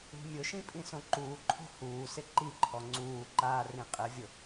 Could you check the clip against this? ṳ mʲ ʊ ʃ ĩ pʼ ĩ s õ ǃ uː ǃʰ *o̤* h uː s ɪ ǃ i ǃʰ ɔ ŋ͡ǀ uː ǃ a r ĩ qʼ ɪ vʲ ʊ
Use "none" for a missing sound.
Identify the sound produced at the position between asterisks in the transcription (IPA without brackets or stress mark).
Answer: o̤